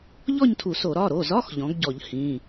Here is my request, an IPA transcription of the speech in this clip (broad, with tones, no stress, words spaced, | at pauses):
ʎɔ˥˧ɲtʰu˧˩˧so˧˩˧ ɾɒ˩˧˩ɾo˩˧˩zɒ˧˥˧x ʎɔ̃˩˥ɡɟɔ˧˩˧ʎ hĩ˩˧˩